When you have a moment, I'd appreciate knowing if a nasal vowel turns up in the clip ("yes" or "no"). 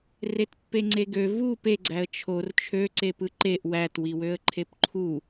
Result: no